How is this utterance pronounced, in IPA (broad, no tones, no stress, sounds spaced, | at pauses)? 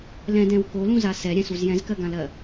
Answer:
l ɛ̃ d ɛ̃ w k o l ũ z a s ɛ ɾʲ ɛ̃ s u z j ɛ̃ z k ɜ ɡ ã l ɜ